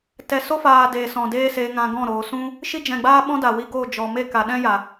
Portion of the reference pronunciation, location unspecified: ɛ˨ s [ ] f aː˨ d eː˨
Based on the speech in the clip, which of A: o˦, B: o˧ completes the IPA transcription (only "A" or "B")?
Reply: A